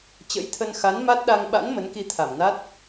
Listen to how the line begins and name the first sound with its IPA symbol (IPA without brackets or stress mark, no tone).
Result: t͡ɕ